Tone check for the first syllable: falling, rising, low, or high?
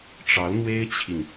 rising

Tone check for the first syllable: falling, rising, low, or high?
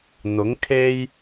rising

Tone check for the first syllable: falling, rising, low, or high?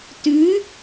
rising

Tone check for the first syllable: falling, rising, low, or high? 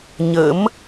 rising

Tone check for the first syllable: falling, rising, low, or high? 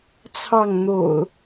falling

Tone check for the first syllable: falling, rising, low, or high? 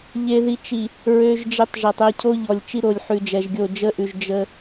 low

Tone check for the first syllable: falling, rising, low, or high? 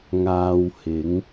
low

